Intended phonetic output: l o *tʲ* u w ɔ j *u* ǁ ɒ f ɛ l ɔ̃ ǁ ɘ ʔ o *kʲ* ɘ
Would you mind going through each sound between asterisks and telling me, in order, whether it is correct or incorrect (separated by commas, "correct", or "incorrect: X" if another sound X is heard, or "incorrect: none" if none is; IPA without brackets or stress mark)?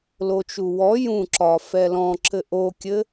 incorrect: t͡ʃ, incorrect: ũ, correct